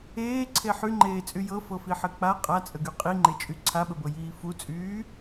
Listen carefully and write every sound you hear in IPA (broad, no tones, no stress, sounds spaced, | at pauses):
eː ǀʰ e ħ y ŋ͡ǃ eː t͡sʼ y j ɤ f ɤ f i ħ ɘ k͡p a qʼ a t͡sʼ ə ɡ y qʼ i ŋ͡ǃ e t͡ʃʼ y ǀʰ a ɓ ə b ɤ j iː f u t͡sʼ yː